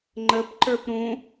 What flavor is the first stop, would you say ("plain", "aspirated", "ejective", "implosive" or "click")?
click